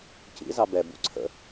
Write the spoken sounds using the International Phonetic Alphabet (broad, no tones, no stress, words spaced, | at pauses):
cḭzɑ bɛbṵ ǀʰə̰